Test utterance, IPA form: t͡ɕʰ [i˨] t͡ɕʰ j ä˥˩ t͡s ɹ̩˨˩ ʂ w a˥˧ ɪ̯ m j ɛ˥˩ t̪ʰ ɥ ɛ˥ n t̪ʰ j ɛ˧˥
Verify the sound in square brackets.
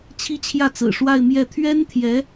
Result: incorrect: i˥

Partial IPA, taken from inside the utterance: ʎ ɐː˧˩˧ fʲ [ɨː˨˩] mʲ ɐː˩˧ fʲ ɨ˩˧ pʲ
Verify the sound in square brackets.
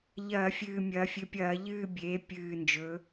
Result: correct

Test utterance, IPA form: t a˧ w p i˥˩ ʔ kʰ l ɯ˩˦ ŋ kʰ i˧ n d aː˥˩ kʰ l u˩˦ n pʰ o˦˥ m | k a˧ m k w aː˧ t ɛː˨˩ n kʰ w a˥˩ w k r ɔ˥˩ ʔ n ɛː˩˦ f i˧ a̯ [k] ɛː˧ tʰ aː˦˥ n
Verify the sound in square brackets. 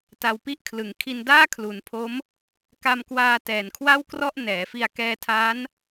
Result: correct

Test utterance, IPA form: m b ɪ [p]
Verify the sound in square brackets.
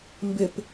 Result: correct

